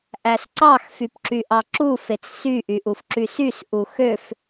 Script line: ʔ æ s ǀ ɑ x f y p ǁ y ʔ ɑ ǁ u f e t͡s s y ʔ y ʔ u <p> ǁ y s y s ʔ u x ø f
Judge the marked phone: incorrect: f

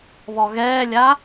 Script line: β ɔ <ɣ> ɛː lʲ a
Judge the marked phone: correct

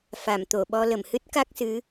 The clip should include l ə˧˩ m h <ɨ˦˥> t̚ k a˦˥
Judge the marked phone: correct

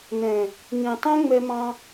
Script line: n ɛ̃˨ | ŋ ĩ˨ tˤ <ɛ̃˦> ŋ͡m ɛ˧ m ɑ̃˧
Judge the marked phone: correct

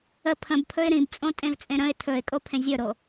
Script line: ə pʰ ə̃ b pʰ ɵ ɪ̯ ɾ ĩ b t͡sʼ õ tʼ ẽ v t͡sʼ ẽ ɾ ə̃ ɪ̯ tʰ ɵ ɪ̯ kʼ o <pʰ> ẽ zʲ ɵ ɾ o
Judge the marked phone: correct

